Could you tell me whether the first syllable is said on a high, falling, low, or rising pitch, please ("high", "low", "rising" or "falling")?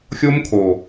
high